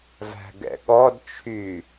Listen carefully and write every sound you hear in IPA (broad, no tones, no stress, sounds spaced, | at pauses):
v æ̤ ɡ ɛ̰ ɠ ɔ d t͡ʃʰ yː